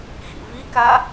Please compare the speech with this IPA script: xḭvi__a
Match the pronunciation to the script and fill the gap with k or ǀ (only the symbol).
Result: k